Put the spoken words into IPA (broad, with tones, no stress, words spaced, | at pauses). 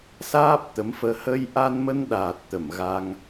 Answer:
saː˦˥p̚t̪ə˨˦mfəː˧ hə˧jʔa˧nmə˧nɗaː˨˩t̚ t̪ə˧˩mɣa˧ŋ